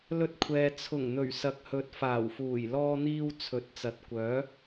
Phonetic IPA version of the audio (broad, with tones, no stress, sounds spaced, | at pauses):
l ɵ˧ t̚ kʷʰ ɛː˨ t͡sʰ ʊ˨˩ ŋ n̪ ɵ˨˩ ɥ s ɐ˨ k̚ h ɵ˨˥ t̚ f aː˨˩ w f uː˨˩ j l ɔː˥ n̪ iː˥ w t͡sʰ ɵ˨˥ t̚ t͡s ɐ˨˥ t̚ kʷ œː˨˥